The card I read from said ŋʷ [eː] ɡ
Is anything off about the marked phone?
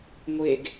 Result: yes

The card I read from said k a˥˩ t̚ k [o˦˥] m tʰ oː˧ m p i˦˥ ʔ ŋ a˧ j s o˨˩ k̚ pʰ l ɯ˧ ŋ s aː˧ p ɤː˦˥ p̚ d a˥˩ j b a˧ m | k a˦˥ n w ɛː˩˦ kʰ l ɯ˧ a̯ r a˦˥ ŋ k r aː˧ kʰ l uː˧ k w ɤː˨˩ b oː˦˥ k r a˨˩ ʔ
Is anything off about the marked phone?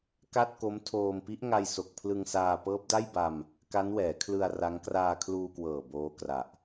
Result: no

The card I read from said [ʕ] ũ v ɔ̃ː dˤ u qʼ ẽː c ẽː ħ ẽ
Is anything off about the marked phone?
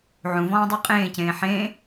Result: no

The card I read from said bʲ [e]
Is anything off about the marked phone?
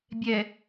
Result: yes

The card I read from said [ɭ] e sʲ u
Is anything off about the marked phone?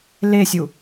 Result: yes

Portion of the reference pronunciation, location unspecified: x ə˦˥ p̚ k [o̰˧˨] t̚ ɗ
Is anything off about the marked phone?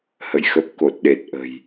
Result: yes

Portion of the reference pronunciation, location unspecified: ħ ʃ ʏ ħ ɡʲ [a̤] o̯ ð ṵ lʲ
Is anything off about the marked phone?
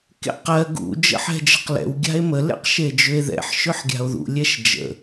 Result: no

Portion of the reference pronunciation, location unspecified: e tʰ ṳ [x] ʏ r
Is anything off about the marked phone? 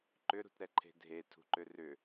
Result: yes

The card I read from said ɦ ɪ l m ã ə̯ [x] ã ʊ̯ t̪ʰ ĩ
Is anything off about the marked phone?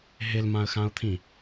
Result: no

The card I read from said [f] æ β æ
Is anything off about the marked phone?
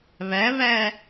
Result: yes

